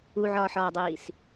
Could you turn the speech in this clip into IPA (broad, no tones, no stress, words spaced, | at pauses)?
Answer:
uʕɒːħɒːdˤiːs